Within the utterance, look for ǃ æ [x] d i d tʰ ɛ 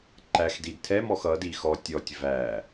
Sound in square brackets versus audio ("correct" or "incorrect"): correct